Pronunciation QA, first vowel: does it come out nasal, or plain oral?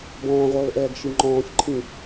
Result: nasal